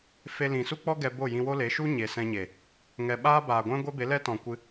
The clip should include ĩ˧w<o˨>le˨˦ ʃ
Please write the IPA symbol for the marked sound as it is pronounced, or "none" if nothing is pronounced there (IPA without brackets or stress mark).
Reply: o˦